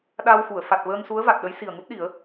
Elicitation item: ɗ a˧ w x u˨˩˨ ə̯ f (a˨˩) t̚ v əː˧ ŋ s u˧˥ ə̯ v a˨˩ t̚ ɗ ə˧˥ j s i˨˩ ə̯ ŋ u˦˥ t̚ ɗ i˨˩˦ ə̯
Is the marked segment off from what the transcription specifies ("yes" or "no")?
no